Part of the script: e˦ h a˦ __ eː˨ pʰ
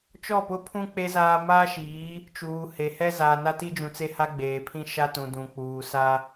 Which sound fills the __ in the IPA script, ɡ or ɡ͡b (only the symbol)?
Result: ɡ͡b